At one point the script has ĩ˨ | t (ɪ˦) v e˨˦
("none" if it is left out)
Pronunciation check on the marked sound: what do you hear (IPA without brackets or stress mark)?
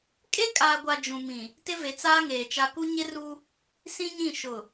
ɪ˦